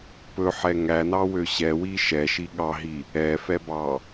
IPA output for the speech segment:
pɵħɛ ŋænɑwø ɕɛwi ʃɛʃi ɠɑɦi | ɛfɛbɑ

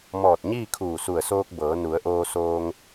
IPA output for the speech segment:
mɔː˧˩t̚ɲiː˥˨ kʰuː˧˩su˧˩ə̯soː˧k̚bɤː˩˧ nu˩˧ə̯ʔoː˧soː˧ŋ

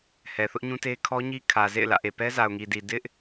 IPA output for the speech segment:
hɛ˨θʊ˦ʔɲũ˦te˦ kʰɔ˦ɲi˦kʰä˨ zḛ˦˨ɪ̯lä̰˦˨ʔe˨pɛ˦ za˨ʊ̯ŋi˨di˨ dɪ˦ʔ

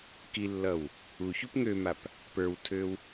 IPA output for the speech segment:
kilːʌw | uçup ŋømap | pə˞wtʰøw

